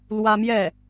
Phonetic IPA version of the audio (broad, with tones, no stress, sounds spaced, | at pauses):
l w ä˥ m j ɛ˥˩